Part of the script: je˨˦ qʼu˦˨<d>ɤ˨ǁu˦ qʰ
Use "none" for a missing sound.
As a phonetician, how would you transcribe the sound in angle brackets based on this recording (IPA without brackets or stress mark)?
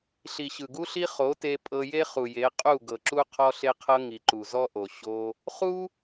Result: ɡ